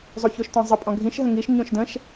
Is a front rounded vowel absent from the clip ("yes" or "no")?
yes